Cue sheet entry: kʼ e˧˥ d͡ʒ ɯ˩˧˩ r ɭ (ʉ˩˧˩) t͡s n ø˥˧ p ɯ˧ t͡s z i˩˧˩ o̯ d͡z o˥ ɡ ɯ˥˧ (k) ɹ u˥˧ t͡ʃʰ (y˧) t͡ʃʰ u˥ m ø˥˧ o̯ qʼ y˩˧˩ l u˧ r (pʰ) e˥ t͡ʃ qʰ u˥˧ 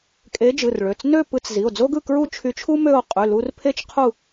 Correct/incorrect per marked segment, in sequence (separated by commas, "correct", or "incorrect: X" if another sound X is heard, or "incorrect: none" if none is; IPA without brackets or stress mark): incorrect: ø˩˧˩, correct, correct, correct